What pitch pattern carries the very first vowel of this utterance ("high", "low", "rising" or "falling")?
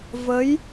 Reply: rising